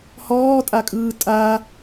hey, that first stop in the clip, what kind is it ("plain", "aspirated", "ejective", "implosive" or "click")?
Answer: ejective